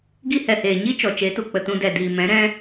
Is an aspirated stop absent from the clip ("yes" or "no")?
yes